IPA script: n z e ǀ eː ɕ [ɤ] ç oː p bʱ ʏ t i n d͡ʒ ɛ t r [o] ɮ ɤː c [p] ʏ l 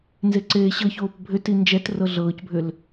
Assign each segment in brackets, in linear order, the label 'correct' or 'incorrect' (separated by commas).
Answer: correct, incorrect, incorrect